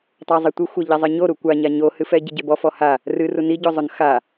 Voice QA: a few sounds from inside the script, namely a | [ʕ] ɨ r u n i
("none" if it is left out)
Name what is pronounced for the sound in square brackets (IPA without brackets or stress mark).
r